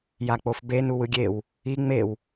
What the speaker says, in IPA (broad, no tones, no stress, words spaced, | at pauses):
jak͡pofbe nuwɯɡʲew | i ŋ͡mew